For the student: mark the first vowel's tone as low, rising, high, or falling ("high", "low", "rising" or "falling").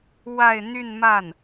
falling